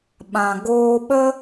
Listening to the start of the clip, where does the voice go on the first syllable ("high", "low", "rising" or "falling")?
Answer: low